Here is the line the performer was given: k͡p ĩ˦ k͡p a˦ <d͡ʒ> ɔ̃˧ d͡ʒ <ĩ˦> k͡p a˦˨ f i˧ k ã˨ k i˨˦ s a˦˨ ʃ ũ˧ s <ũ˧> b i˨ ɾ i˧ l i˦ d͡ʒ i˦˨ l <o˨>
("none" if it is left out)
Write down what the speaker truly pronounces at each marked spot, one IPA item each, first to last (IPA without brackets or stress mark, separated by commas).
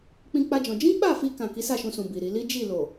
d͡ʒ, ĩ˦, ũ˨, o˨